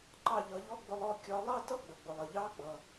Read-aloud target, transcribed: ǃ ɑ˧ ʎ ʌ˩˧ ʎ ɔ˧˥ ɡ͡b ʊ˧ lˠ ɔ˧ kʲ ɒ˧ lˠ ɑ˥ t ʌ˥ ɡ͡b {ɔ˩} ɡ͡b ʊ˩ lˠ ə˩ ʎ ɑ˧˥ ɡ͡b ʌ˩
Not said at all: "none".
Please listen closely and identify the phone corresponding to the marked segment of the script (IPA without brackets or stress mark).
ə˩